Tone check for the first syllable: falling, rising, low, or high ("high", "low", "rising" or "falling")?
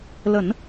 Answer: low